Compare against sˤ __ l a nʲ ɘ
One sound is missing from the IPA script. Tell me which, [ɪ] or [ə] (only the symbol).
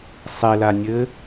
ɪ